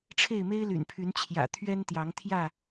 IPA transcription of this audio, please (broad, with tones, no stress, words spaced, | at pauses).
ʈ͡ʂʰe˥˨ɪ̯me˦ɪ̯ly̰˨˩npʰy˨˦n t͡ɕʰjä̰˨˩t̪ʰɥɛ˦nt̪jɑ˨˦ŋt̪ʰjä˥˨